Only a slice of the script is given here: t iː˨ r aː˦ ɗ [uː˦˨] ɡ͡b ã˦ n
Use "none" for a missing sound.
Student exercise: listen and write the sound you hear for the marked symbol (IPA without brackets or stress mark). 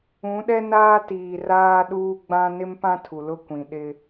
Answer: uː˦